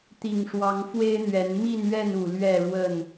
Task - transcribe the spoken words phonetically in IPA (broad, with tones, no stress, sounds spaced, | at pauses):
t̪ i˨˩ ŋ ʂ w ɑ˨˦ ŋ f w e˦ ɪ̯ n̪ ɥ ɛ˨˦ n m i˥˨ n ɥ ɛ˥˨ n u˨˩ l ɥ ɛ˥˨ ɻ w ə˥˨ n